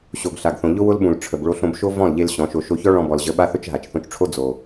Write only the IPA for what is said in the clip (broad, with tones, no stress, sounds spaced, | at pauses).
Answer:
ɕ o˨ ɡ ɬ a˨ ɡ θ õ˨ ʎ ʊ˦ w ʊ˦ l ɓ ũ˨ l ʈ͡ʂʰ ə˨ b ɭ o˧ ɬ õ˧ b ʃ o˦ v ɔ̃˦˨ l ʎ e˧ l ɕ ɔ̃˨˦ ʃ o˧ ʃ o˦ ç ɔ˦ ɭ ɔ̃˧ b ɔ˨ l ʑ ə˨˦ ɓ a˦ θ ʊ˦ t͡ʃ ɦ a˨ t͡ʃ θ õ˧ t͡ʃ ʈ͡ʂʰ o˦ d͡z o˨